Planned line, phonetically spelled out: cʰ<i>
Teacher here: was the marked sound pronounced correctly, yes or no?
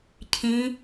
no